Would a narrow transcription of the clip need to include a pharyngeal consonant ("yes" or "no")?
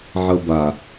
yes